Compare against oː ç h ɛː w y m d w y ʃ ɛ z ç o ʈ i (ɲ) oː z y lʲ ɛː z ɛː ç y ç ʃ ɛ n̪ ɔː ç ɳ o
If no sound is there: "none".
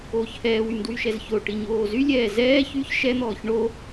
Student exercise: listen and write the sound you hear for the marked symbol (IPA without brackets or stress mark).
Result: ɲ